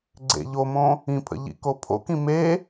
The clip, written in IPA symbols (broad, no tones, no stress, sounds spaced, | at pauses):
ɡ͡ǀ ḛ ʎ o m õ | ĩ pʰ ə̰ ʎ ḭ k o pʰ o̰ k ĩ m e